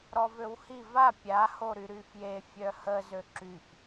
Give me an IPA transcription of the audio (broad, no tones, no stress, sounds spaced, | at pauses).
ɾ ɔ v ø w h i v a pʲ a h o ɾ y ɾ y f j e fʲ œ h ə z ø ǁ y f